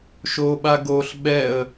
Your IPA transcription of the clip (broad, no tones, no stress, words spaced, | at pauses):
ʃoɓa ɡoɬ ɓɛə̯